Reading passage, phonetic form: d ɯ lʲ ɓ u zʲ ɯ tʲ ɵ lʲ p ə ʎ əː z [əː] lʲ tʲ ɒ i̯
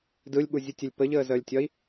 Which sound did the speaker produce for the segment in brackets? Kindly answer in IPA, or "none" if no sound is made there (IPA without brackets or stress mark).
əː